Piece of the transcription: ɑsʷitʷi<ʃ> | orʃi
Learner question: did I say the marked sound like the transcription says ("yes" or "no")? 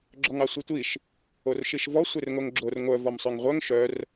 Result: yes